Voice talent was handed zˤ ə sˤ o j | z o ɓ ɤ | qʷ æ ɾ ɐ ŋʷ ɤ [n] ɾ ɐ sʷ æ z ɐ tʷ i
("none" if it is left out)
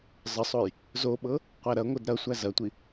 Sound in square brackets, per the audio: d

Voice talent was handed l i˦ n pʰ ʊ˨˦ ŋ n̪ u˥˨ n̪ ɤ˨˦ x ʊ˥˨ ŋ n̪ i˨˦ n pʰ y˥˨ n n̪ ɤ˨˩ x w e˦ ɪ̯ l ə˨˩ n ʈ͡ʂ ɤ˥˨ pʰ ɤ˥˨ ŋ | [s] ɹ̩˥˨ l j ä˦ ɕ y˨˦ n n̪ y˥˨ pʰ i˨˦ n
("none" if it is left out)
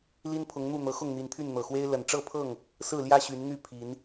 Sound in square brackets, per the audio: s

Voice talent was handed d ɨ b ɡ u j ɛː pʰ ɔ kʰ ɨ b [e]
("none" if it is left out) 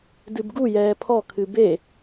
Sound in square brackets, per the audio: e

